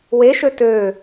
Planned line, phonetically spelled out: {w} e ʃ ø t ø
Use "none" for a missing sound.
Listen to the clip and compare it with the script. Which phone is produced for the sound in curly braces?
w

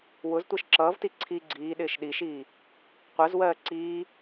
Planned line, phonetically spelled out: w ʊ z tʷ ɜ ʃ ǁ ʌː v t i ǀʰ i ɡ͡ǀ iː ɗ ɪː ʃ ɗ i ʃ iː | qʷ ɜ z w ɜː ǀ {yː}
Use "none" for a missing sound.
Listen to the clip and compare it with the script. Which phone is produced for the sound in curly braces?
iː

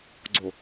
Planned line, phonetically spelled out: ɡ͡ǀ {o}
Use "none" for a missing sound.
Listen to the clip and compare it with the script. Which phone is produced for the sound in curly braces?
o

